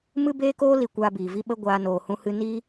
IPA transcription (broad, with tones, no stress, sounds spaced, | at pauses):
m ɨ˦ b eː˦ k oː˦ l i˦˨ kʷ aː˧ b iː˨ v i˧ ɓ ə˦ ɡʷ aː˦ n oː˧ h ũ˦ h ɨ˦ n i˦